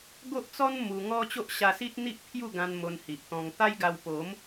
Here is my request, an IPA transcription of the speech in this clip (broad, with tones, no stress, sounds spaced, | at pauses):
ɡ o˦ ʔ t͡s ɔ˦ n m u˧ ŋ ɔ˦ t͡ɕ o˦ ʔ ɕ a˧ s i˦ t̚ n̪ i˦ ʔ pʰ j u˥˧ ɡ ã˧ n m o˧ n h i˨ ʔ t̪ ɔ̃˧ ŋ t̪ a˦ j ɡ a˧ w p o˨˦ m